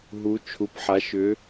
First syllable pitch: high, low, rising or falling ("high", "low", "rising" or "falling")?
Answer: rising